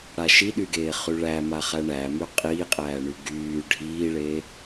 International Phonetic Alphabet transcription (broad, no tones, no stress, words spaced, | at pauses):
ɽaʃiɗyɡeː χyɭæ maχæɳæmy qʼiːqʼæːɳy ɡyː ɖʱiːɭeː